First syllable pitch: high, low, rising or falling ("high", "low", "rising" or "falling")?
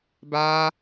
high